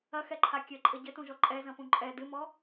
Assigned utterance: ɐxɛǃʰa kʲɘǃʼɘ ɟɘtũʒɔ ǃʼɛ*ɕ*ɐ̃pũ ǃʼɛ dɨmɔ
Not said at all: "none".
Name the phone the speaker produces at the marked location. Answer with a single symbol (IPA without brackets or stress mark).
z